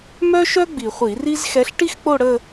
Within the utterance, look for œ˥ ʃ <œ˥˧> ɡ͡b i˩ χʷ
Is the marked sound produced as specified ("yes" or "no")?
no